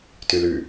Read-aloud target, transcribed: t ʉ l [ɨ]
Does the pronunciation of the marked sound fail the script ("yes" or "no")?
yes